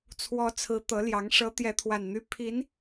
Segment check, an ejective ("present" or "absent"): absent